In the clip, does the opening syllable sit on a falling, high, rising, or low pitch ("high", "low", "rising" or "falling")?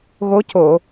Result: rising